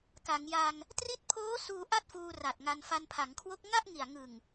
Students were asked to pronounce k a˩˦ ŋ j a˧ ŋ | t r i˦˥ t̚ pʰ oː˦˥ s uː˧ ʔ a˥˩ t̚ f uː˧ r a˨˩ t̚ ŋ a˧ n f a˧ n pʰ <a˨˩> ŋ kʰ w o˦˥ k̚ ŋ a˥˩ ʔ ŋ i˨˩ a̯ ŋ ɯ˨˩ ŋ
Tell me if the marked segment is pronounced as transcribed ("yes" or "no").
no